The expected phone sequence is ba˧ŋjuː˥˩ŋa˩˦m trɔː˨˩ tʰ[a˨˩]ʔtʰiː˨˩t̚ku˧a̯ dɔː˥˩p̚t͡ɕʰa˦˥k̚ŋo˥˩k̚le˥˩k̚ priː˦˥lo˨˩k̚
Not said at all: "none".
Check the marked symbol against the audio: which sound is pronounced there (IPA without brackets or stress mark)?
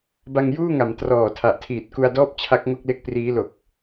a˨˩